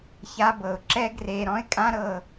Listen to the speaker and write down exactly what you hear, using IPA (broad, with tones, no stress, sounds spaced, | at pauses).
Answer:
ç a˧ b ɤ˨ ʊ̯ ǁ ɛ˦ ɡ r e˧ ɾ ɔ̃˦ ɪ̯ kʼ ã˦ ɾ ɤ˧